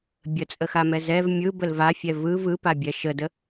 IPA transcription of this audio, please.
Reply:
bʲ ə t͡sʼ ə x a m ɛ z ɛ v mʲ ɯ b ə l v a fʲ ɛ v ɯ v ɯ p a bʲ ɛ ʃ ə d ə

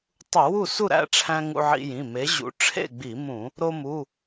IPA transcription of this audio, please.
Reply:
tˤ u˧˩˧ w u˥˨ s u˥˨ ɾ æ̰˥˨ ʈ͡ʂʰ æ̃˧ ŋ ṵ˧ ʕ ḭ˧ j ĩ˩˧˩ m e˨˥ ʑ ṵ˨˥ ʈ͡ʂʰ ḛ˥˨ ɡ͡b i˧˩˧ m ũ˧˩˧ | ɾ o˧ m u˩˧˩

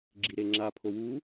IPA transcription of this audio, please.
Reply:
ɡ͡ǁ i ɾ e ŋ͡ǁ a pʰ o w u

